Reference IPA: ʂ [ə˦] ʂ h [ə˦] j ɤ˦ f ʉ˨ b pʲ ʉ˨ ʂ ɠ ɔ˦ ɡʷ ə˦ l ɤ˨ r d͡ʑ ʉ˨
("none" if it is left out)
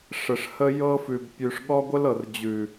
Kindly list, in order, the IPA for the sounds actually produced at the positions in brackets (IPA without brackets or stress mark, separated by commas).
ə˨, ə˦